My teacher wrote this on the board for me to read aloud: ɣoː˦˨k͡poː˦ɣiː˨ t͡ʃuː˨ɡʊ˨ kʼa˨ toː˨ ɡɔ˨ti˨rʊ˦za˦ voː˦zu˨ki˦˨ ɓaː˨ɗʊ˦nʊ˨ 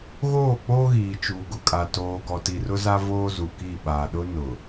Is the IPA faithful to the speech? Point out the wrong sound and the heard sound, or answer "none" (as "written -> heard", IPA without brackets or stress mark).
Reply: none